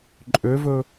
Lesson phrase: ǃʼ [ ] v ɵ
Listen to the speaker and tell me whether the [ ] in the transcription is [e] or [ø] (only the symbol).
ø